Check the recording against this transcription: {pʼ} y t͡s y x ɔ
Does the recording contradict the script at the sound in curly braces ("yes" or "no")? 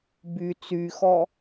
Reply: yes